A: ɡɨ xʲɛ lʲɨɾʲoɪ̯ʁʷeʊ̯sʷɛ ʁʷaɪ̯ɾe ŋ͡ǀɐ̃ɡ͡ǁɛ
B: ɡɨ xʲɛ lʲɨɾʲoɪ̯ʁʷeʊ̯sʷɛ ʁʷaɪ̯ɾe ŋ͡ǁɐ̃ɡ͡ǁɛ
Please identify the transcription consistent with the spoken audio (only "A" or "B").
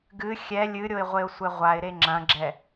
B